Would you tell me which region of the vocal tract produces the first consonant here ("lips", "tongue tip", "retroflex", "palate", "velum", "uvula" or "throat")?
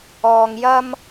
velum